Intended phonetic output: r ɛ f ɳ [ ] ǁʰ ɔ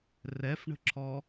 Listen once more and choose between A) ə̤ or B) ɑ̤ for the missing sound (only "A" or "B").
A